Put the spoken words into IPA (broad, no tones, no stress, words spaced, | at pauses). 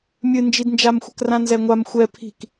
mʲɨnd͡ʒidnd͡ʒamxʷɘk rãnzɛŋʷam xʷɛ pʰi̤k